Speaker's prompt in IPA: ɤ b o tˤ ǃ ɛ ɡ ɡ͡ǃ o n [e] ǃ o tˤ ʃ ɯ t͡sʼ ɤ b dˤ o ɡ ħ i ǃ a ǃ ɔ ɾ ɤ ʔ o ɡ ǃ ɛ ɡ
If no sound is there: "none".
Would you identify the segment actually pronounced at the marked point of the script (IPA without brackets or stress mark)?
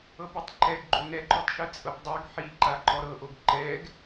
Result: ɛ